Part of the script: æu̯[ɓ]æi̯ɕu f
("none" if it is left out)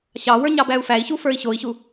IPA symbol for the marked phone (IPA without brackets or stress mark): f